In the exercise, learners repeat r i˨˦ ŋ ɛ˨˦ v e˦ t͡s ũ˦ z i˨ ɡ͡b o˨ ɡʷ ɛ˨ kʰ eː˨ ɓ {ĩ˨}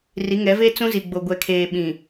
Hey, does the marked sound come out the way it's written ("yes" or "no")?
yes